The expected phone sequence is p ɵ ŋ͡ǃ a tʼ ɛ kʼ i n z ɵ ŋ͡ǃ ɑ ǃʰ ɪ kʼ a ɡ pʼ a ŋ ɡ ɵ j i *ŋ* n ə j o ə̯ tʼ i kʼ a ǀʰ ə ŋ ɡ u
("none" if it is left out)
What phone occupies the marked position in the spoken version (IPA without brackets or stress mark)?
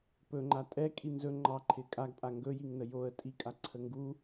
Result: ŋ